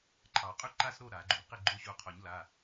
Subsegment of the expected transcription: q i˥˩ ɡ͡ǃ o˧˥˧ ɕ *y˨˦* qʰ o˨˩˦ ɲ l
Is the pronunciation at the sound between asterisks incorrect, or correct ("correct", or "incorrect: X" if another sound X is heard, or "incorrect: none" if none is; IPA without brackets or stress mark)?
incorrect: u˨˦